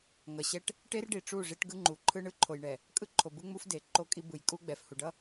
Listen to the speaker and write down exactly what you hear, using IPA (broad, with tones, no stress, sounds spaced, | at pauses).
ŋ ʌ˨ ɕ ɛ˦ ʈ | ʈ e˦ r ɖ i˨ ʈ͡ʂ u˦˨ ʐ i˦ ʈ ɡ ɯ˦ ŋ͡ǃ u˨ ǃʰ ɯ˦ ɳ ɯ˦ ǃʰ o˨ j ɳ ɛ˨ | kʼ ɯ˦ ǃʰ o˨ b ɯ˦ ŋ͡m u˦ f d e˨ ǃ o˦ kʼ i˦ b ɯ˨ j kʼ u˦ ɡ͡b ɛ˨ f h u˨ ɖ ʌ˦